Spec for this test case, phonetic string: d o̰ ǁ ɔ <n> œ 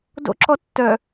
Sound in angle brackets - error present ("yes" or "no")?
yes